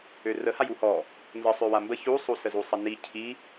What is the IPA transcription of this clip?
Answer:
ørəhaj uhɔ | nzə sˤøwambə çusˤusəzu sˤəni cʰi

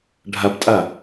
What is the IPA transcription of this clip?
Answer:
ɖʱabtʼa

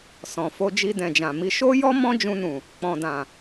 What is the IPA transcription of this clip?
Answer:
sɔ̃˨fo˧ d͡ʒi˧dɛ̃˨d͡ʒã˨mi˧ ʃo˦jɔ˦ mɔ̃˦ d͡ʒũ˧nũ˨ | k͡pɔ̃˨dã˨

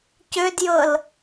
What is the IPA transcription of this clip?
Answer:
cødjɤl

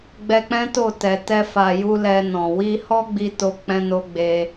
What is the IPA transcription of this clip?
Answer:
ɡ͡bɛ˧k͡pɛ̃˦to˦˨ tɛ˨ tɛ˧fa˨ju˧ lɛ˧nɔ̃˨ wi˧hɔ˦ ɡ͡bi˧to˧k͡pɛ̃˧ no˧ ɡ͡be˧

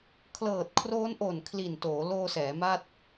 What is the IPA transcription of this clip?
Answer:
kʰlɤː˨˩t̚kʰroː˦˥nʔo˨˩n kʰli˨˩ntoː˩˦ loː˧sɛː˩˦ma˥˩t̚

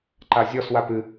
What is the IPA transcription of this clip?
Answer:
ǃazʲɔswap ɨ

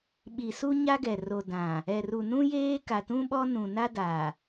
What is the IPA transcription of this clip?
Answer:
ɓi˨ su˦ɲa˦ɡɛ˨ ro˨dã˨ | ɛ˨ru˨nũ˦jeː˦ ka˨tũ˦ɓɔ˦ nũ˨na˦da˨

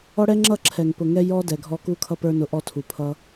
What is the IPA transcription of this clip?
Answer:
ɔ˦ɽɛ˦ŋ͡ǁʌ˦˨ ǁʰɛ˨ŋpʊ˨ŋɛ˧ jɔ˦dɛ˨ɡʱɔ˧ ku˧kʰʌ˧pə˞˧nʊ˨ ʔɔ˧tʰu˨pʰʌ˧

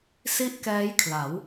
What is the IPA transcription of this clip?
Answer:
si˥˩ʔkɛː˦˥jkʰla˩˦w

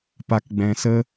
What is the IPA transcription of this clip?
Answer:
pa˧kɡ͡bɛ̃˧sə˦

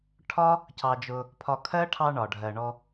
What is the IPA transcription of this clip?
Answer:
ʈʰɒ˦ | cɑ˧d͡ʒʊ˧ | pʰɒ˧ kʰɜ˦ʈʰɑ˧ ɳɒ˨ ɖʱɜ˨ɳɔ˧

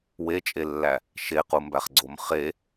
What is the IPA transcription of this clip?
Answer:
wet͡ʃʼelːæ | ʃequmbæχɡ͡ǀom χe

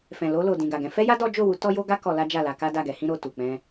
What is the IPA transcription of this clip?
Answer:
fɛ̃˨lo˧ lo˨ dĩ˨ɡa˨ɡɛ̃˨˦ fɛ˦ja˦ dɔ˦ d͡ʒo˦˨wu˨˦ tɔ˦jo˦ɡa˦ kɔ˧la˦ d͡ʒa˦˨la˧ka˦ da˦˨ɡɛ˨˦hĩ˦ ɾo˦˨ tu˨k͡pɛ̃˧

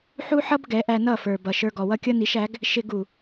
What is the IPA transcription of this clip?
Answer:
ħu˦ħʌ˦b ɡɛ˨˦ʔæ˧nʌ˦˨fə˞˨ bʌ˨ ʃə˞˧ɡɔ˨wʌ˦ kʲʌ˦ni˨˦ʃæ˨˦ɡ | ʃɪ˧ɡ u˨

